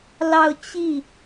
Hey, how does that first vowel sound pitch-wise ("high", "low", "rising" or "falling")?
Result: falling